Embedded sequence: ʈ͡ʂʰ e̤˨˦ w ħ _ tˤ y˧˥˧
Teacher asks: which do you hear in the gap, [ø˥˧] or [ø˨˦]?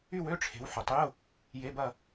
ø˨˦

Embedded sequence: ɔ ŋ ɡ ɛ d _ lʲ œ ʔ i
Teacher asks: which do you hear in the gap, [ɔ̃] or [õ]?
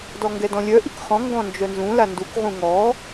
ɔ̃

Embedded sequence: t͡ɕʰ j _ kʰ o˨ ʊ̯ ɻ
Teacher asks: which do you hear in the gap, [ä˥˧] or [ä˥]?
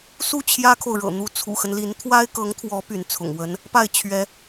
ä˥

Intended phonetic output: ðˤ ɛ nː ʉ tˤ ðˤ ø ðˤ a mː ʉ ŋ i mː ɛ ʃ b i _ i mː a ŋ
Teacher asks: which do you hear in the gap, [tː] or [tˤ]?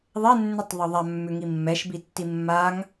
tː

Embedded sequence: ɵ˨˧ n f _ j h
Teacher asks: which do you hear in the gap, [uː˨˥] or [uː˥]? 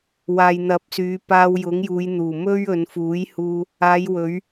uː˨˥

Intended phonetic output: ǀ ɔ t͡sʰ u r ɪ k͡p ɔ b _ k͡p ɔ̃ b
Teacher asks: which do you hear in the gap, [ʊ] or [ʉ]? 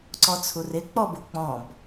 ʊ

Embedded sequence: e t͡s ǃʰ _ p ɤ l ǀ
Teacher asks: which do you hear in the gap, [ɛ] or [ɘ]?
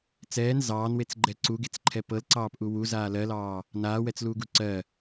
ɛ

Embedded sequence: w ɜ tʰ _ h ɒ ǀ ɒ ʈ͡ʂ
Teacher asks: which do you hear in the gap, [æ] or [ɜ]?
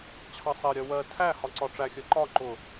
æ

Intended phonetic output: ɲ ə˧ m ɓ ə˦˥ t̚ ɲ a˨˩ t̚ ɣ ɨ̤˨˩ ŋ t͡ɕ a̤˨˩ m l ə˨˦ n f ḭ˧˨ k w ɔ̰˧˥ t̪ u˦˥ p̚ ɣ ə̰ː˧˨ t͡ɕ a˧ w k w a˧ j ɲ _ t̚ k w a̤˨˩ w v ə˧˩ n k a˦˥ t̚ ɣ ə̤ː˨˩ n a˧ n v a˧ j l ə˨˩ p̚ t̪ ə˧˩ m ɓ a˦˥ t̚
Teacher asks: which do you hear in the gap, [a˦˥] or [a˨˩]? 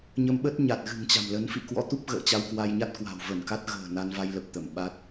a˦˥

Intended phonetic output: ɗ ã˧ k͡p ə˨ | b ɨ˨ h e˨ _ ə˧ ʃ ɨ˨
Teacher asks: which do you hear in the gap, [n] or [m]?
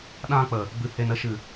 n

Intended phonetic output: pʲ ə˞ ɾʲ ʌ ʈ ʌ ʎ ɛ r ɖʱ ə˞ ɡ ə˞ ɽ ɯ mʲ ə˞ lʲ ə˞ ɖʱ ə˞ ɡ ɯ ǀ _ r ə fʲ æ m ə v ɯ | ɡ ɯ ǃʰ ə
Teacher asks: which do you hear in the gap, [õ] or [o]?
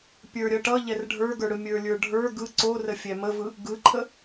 o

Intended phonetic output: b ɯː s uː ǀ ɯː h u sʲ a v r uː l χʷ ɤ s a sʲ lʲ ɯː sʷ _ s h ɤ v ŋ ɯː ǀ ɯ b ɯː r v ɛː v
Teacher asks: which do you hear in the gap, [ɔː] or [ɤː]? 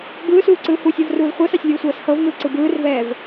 ɤː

